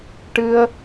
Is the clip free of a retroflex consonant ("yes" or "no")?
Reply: no